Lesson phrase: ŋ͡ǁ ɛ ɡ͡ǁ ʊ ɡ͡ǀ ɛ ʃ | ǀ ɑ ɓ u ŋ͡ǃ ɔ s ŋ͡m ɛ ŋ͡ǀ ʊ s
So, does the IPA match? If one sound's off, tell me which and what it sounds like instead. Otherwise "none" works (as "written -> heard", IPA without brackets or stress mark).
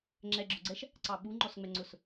none